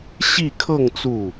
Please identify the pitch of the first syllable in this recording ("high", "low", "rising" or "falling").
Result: falling